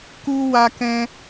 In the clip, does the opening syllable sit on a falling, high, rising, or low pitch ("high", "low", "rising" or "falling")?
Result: high